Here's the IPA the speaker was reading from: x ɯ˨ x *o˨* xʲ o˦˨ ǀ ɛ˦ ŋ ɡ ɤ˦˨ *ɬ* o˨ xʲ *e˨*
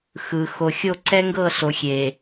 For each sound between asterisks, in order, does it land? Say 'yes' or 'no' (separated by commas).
yes, yes, yes